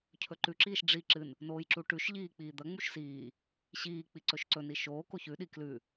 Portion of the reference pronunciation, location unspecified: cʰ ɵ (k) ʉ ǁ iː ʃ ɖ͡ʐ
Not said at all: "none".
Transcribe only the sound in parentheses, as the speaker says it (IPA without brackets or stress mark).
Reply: ǃ